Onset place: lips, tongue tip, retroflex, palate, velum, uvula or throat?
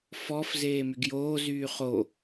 lips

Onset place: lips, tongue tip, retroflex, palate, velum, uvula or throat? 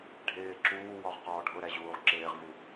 retroflex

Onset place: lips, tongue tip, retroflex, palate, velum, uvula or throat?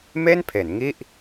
lips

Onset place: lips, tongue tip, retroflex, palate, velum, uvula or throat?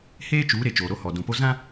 throat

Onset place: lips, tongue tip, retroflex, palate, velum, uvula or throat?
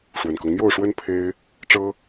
retroflex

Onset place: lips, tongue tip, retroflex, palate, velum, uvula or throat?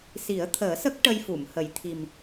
tongue tip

